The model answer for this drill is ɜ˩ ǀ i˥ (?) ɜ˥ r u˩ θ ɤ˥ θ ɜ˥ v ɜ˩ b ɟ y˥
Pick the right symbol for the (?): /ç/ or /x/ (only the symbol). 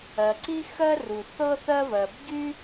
x